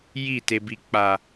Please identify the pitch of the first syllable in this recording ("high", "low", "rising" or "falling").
falling